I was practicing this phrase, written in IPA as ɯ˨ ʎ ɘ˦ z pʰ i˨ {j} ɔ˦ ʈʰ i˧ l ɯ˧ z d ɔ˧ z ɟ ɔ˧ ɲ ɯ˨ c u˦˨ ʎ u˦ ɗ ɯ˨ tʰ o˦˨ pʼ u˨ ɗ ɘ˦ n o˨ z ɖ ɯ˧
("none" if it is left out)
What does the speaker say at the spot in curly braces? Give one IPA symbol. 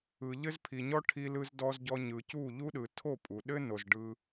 ɲ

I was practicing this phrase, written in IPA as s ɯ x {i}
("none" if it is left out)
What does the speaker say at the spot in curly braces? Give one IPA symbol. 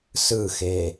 e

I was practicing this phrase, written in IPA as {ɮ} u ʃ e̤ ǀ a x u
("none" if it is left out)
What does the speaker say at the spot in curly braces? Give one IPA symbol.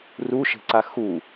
r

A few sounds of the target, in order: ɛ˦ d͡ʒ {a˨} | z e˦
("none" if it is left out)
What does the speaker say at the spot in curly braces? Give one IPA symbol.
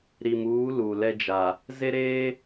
a˨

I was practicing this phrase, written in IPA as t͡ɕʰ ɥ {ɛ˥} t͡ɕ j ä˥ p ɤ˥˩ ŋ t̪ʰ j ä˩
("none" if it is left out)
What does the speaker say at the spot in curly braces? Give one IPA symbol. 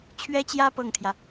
ɛ˥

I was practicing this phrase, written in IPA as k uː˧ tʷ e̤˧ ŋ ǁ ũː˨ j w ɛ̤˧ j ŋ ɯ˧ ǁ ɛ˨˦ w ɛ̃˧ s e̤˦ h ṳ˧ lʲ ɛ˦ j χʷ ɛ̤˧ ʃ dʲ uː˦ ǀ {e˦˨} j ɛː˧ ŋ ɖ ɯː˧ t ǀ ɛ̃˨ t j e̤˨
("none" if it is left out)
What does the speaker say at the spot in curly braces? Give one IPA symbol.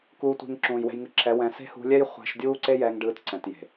e˦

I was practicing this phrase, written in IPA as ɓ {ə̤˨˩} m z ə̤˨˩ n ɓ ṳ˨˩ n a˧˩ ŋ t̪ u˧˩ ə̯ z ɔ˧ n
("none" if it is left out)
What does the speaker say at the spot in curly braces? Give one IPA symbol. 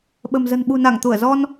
ə̤˨˩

